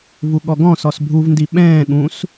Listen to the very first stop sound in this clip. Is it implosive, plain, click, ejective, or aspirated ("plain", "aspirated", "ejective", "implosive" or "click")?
implosive